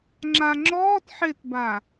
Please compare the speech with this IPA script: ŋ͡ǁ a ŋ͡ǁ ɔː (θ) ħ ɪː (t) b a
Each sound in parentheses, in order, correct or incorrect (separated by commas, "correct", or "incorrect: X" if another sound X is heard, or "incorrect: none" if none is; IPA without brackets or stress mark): incorrect: t, correct